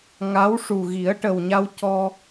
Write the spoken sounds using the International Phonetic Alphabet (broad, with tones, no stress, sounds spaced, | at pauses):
ŋ a˧˥ w ʂ u˨˩ ɣ i˨˩˦ ə̯ ʈ ə˨˩ w ɲ a˧ w c ɔ˧